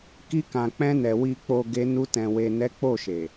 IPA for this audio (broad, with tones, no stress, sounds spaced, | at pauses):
k i˧ k ã˨ k͡p ɛ̃˧ n ɛ˨ w i˨ k͡p o˨ ɡ e˧ n u˧ t ɛ̃˨ w e˨ n ɛ˨˦ k͡p o˦˨ ʃ e˨